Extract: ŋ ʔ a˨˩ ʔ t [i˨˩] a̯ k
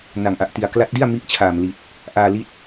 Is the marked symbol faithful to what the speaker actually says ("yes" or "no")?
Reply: yes